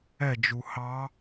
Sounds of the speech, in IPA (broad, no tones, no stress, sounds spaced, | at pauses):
ɛ d͡ʒ u h ɑ